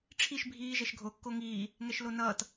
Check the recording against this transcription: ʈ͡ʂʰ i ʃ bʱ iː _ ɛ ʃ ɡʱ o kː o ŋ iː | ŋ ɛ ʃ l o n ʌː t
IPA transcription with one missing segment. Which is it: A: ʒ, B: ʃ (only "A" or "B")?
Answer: A